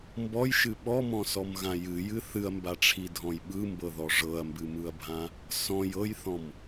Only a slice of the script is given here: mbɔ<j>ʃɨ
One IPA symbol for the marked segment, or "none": j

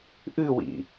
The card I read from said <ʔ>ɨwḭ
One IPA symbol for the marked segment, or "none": ʔ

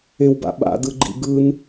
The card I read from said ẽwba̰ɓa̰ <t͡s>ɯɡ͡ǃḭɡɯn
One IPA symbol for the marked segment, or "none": d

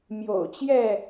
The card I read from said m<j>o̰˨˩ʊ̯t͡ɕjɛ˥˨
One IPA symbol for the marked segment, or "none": j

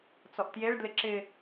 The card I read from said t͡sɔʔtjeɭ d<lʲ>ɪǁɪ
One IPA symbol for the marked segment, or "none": l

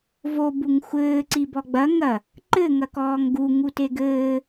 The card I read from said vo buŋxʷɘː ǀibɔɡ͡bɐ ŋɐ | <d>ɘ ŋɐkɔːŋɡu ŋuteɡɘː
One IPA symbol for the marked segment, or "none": ǃ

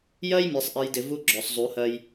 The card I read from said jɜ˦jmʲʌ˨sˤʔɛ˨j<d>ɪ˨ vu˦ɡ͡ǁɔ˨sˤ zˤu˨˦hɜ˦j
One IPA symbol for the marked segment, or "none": d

